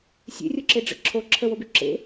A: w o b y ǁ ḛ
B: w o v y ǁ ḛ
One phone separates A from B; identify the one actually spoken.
A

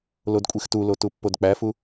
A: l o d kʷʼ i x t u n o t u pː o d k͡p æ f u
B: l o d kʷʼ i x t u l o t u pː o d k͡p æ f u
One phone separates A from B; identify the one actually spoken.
B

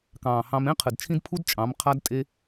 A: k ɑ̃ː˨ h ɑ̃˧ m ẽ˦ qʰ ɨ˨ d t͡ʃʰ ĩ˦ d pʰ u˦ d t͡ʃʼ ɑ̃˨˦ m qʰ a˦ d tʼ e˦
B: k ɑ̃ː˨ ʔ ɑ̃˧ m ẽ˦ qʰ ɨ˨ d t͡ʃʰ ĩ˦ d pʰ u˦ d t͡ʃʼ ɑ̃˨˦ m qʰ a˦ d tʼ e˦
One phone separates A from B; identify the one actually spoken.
A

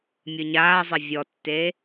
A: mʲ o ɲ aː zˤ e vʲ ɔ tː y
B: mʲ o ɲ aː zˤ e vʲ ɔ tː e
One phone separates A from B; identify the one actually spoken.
B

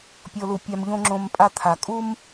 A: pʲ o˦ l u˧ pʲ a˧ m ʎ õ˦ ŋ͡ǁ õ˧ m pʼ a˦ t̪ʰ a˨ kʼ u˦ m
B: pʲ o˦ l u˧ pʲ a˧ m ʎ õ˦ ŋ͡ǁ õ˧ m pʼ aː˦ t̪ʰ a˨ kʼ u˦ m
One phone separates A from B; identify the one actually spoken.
A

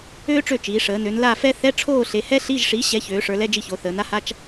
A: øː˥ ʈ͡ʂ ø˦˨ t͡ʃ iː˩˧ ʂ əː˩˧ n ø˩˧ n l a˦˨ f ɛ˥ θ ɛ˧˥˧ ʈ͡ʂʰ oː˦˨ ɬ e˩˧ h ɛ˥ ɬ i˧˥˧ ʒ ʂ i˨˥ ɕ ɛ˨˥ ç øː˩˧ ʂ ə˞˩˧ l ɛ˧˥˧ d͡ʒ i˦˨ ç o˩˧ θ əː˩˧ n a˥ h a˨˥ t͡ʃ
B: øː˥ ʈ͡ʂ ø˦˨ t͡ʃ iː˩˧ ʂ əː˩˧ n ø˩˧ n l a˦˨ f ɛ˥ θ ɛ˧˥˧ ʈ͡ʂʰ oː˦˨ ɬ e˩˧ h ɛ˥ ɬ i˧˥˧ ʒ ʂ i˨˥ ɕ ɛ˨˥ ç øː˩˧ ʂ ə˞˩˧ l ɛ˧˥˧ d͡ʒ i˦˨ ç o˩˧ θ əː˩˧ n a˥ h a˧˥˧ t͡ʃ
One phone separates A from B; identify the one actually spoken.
B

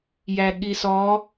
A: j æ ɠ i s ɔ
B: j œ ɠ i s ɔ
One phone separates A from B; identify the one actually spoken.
A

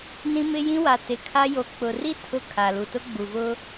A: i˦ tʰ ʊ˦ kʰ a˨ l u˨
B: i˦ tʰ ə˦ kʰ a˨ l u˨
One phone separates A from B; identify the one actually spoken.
A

